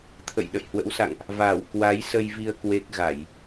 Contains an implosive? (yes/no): yes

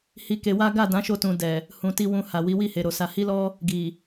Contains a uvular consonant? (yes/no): no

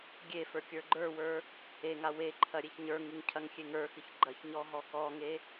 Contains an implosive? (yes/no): no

